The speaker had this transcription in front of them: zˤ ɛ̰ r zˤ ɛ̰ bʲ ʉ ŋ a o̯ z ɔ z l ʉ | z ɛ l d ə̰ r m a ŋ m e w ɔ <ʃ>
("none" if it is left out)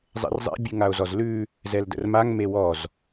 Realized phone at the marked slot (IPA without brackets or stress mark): z